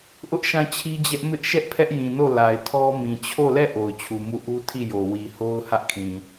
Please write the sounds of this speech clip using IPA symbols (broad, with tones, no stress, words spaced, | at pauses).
ʔʊ˦ʔʃã˦˨t͡ɕʰi˦d͡ʑɛ˦ʔ mɪ˦ʔ ʃɛ˦ʔpʰɛ˦ʔjĩ˨no˦˨ la˨ɪ̯tʰɔ˦mĩ˨ t͡ɕʰo˦˨lɛ˦˨ ʔo˨ʊ̯t͡ɕʰu˨mu˦˨ ʔu˦ tʰi˦˨jo˨ wi˨ ho˦ʊ̯ hä˦ʔkʰĩ˨